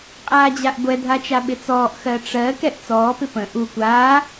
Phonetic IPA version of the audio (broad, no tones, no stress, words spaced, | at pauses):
qʼaːd͡ʑaʔɡʷɛ dʱat͡ʃaɓɪt͡sɔːʔ xɜʈ͡ʂɜ kɛʔt͡sɔː pɪpə̃ ʔu kʷaː